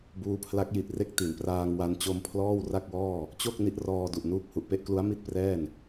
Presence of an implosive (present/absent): absent